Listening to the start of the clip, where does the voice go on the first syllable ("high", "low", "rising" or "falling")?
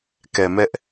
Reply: low